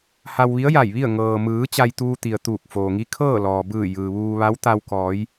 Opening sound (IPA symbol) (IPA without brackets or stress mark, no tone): h